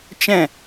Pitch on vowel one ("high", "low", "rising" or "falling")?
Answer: falling